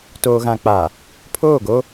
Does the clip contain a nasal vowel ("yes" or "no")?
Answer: yes